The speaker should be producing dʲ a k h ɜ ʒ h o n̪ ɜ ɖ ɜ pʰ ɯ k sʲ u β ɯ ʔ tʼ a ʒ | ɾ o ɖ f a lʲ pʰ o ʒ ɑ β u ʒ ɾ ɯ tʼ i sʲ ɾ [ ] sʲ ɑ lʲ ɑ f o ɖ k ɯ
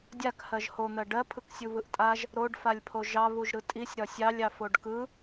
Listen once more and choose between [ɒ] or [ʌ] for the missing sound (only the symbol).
ɒ